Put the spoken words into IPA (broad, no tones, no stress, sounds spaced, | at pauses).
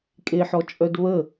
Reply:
kʼ e ħ ɔ t͡ʃʼ œ d β ə